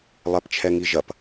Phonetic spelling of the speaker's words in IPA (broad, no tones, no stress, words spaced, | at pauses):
lˠɛpt͡ʃʰɛŋiʒɐp